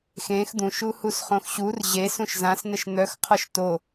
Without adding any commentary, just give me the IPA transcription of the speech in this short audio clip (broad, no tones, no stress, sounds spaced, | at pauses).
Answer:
x ẽ x d̪ ũ ʃ u h u s χ õ x ɕ u r ʑ e s ũ ʃ z ã s n ə ʃ n̪ œ x qʰ ɔ ʃ t o